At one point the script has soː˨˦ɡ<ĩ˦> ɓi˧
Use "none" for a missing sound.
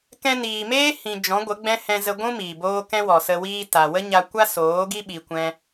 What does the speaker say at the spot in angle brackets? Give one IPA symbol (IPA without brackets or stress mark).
i˦